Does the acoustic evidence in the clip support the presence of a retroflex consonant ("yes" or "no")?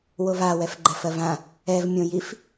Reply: no